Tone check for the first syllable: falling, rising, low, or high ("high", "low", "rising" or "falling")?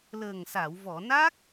low